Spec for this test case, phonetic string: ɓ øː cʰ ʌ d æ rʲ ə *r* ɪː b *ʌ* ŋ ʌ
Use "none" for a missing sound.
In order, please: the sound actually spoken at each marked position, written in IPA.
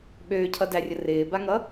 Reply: r, a

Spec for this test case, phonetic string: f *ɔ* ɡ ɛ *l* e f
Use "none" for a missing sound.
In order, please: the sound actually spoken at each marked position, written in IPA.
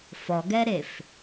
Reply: ɔ, ɾ

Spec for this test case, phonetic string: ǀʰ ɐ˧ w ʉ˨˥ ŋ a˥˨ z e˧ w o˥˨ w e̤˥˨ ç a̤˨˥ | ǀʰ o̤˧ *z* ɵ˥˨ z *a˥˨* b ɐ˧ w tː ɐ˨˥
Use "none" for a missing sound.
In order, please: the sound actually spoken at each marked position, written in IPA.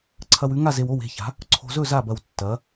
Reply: z, a˥˨

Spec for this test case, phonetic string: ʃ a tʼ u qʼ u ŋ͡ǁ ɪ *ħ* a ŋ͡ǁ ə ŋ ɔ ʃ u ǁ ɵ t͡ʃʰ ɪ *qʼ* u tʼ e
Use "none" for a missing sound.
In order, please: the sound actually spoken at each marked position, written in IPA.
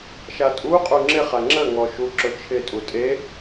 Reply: χ, tʼ

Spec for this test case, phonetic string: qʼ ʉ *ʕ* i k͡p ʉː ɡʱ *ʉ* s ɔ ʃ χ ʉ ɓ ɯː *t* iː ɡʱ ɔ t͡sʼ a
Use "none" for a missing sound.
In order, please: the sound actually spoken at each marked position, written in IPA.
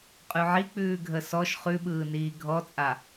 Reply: ʕ, ə, n

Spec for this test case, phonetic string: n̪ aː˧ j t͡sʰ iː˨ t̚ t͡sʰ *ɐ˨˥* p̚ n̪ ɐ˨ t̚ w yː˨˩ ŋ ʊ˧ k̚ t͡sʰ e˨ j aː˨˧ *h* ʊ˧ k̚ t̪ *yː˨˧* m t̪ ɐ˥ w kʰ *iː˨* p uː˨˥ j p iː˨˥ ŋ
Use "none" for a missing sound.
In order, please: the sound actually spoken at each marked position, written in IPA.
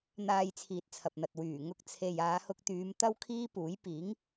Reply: ɐ˨, h, yː˨˧, iː˥

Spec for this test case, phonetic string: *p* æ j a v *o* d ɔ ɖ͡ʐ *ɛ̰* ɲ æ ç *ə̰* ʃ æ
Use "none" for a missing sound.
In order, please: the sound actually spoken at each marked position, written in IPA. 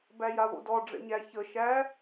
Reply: b, o̰, ɛ̰, ə

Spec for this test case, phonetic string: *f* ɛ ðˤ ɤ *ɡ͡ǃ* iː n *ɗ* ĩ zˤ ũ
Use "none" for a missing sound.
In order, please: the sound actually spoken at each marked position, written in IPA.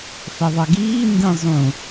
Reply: f, ɡ, d

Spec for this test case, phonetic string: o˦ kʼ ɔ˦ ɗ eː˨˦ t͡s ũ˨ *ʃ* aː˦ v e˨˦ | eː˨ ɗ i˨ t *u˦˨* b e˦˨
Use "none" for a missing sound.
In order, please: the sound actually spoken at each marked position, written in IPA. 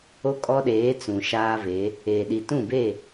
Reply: ʃ, ũ˦˨

